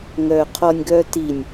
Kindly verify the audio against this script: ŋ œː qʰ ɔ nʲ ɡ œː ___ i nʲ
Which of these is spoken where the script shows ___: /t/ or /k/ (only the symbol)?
t